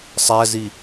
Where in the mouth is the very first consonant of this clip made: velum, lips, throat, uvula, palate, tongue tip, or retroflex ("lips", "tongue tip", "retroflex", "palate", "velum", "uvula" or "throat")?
tongue tip